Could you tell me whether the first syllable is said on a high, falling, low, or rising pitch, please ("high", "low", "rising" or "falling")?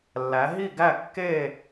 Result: rising